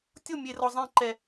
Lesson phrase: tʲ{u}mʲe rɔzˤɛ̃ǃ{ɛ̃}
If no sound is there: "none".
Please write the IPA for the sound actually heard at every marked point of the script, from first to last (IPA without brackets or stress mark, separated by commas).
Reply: o, ɛ